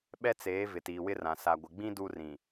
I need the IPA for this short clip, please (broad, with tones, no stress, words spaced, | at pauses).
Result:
ɓɛ˦t͡seː˨˦ vɪ˨tiː˨wɪ˦rã˨ sa˨ɡʷɪ˨ ɡ͡bĩ˦ du˦rĩ˨